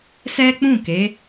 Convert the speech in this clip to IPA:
s ɛ˦ k͡p ũ˦˨ k e˨˦

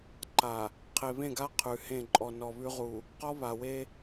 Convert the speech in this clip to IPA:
ǃ a˨ | qʰ e˨ β ẽ˦˨ ɡ a˦ qʰ ʉ˨ h ẽ˦˨ ǃʼ ɔ˨ n ɔ˨ β ʉ˦ ʁ u˨ | q ɔ˦ β a˨ w e˦

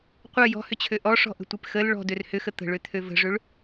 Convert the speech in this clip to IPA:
qʷ ɐ j ɔ̤ h ʏ t͡ɕʰ ø ʔ ɔ ʂ ɔ̤ ʔ ə̤ tʷ e p x ə l ɭ ɔ̤ d ø r h ʏ x ə t̪ ə̤ ɭ ø t̪ʰ ø v ə̤ ʐ ø ɭ

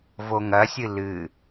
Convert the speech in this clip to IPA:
v o ŋ ɐ sʲ ɨ l ɨ

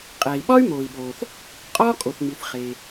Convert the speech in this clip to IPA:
qʼ æ˩ i̯ ɓ ɒ˥ y̯ m oː˩ i̯ ɓ oː˩ θ | qʼ ɒː˥ kʼ o˩ θ ŋ͡m i˩ θ χ e˩

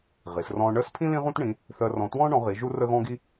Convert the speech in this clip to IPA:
ʁ i˨˦ s r ɔ̃ː˥ ɳ əː˥ s pʰ ĩ˥ l ĩ˥ ʁ ũ˥ t ɳ ĩ˨˦ | θ əː˥ r ɔ̃˥ t w ɔ̃ː˥ ɳ ɔ̃˨˦ ʁ i˨˦ ʒ u˥ r ə˥ ɣ ɔ̃ː˥ ɡ i˥

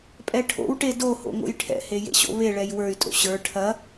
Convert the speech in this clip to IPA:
pʼ ɛ ʈʰ o̰ w ʈ e d o h o̰ ŋ o̰ j ʈʰ ɛ̰ h e j ḛ ɕ o̰ β e ɭ ɛ j w ə˞ y̯ tʼ o̰ ɕ ə˞ ʈʰ ɐ

